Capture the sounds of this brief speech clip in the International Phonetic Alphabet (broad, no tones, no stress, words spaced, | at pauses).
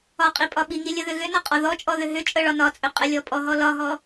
ɒqʼipʼɒ ɓiŋilʲəðʏ ɣʏnɒqʼɒ ðɔt͡ʃʼɔðʏ ɦʏt͡ʃʼəɭɒ nɒt͡sʼʏqʼəlʲɔ pʼɔɦɔ lɒɦɔ